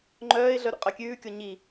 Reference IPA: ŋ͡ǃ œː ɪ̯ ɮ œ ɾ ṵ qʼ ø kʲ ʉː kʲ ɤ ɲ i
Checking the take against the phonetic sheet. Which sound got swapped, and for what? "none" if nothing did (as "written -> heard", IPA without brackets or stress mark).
ɤ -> o